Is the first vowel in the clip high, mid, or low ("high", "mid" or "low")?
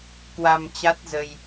low